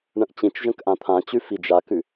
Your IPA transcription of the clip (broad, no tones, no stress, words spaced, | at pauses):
ɳə̃ʔt͡ɕĩt͡ʃʒə̃k ʔãt̪ʰãt͡ɕʉ fid͡ʒakʉ